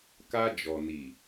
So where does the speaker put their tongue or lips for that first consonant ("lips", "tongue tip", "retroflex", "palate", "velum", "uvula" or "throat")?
velum